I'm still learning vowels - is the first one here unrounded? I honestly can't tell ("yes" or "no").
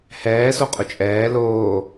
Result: yes